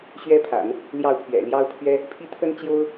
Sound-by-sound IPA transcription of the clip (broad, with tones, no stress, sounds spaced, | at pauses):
ɕ ɥ ɛ˥ pʰ a̰˨˩˦ n | l j ɑ˥˩ ʊ̯ pʰ ɥ ɛ̰˨˩ l j ɑ˥ ʊ̯ pʰ ɥ ɛ˥ | pʰ i˥˩ t̪ʰ ə˥ n t͡ɕ j o˥ ʊ̯